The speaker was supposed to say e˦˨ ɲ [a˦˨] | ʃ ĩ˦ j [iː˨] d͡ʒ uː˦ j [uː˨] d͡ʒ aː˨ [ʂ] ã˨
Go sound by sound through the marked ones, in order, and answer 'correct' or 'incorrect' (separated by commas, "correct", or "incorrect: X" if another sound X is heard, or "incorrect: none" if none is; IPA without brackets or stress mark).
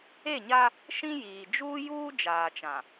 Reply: incorrect: a˦, correct, incorrect: uː˦, incorrect: t͡ʃ